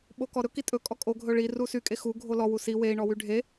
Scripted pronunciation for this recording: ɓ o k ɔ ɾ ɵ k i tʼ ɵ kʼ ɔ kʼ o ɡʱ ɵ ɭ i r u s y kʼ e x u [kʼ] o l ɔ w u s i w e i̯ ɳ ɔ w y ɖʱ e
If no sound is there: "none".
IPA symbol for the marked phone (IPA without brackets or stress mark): ɡʱ